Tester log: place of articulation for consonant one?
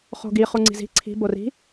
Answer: uvular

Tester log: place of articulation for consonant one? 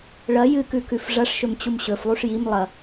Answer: retroflex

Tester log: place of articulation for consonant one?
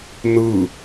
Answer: alveolar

